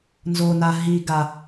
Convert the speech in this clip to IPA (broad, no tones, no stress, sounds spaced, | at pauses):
n z o n a ɦ i ɡ a